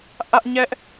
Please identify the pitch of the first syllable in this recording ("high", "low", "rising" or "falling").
high